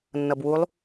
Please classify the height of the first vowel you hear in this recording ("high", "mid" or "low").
mid